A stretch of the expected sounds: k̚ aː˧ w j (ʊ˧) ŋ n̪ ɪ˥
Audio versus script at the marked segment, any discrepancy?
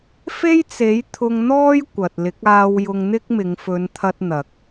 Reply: no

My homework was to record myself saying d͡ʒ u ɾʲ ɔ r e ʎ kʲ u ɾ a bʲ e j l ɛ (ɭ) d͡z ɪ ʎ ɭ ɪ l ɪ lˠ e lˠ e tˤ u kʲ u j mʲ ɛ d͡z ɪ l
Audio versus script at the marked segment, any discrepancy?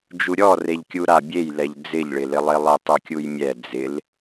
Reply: yes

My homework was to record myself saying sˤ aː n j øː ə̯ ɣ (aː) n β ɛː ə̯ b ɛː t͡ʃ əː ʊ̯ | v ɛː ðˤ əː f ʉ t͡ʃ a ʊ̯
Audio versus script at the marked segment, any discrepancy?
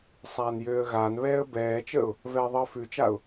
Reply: no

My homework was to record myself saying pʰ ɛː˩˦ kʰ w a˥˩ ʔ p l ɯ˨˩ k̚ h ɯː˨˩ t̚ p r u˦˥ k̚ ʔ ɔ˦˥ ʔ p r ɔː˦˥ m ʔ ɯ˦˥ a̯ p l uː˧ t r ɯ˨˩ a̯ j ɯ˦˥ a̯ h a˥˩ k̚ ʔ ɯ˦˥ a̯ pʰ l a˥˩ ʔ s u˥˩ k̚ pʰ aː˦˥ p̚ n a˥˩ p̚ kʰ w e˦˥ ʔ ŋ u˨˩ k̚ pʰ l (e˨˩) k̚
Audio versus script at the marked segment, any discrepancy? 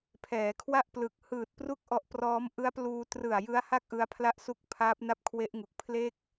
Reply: yes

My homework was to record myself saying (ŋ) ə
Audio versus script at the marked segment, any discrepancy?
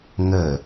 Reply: no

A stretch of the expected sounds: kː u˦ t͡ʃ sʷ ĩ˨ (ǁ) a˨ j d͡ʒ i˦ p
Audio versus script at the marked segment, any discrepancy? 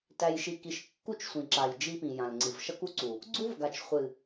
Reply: no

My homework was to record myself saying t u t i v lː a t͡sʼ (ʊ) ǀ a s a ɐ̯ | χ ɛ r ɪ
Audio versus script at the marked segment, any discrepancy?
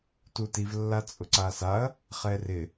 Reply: no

